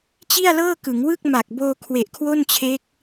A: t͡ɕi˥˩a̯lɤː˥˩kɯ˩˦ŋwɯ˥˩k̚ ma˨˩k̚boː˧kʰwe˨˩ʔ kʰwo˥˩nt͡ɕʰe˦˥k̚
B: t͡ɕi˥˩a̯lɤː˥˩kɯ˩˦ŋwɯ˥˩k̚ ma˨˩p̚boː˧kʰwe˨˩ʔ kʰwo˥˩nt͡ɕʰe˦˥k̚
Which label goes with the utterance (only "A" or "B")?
A